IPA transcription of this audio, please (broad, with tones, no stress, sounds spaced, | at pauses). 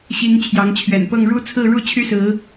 ɕ i˨˦ ŋ t͡ɕʰ j ɑ˨˦ ŋ t͡ɕʰ ɥ ɛ̰˨˩ n p ɤ˥˨ ŋ ɻ u˦ t͡sʰ ɹ̩˥˨ ɻ u˦ t͡ɕʰ y˦ s ɹ̩˨˦